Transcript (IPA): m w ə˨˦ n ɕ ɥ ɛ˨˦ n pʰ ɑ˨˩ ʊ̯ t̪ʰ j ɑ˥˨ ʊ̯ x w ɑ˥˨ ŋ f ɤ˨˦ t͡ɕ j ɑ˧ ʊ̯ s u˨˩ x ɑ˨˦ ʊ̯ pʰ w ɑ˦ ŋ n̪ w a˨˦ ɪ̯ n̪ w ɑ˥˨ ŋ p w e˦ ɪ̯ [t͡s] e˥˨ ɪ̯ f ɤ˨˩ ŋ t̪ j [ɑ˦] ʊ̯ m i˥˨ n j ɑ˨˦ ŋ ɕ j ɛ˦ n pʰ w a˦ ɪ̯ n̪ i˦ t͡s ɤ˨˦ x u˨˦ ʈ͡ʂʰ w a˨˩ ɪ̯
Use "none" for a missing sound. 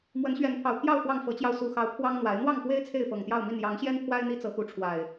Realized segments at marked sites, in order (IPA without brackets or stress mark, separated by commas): t͡sʰ, ɑ˥˨